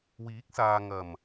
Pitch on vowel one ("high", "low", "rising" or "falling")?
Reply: rising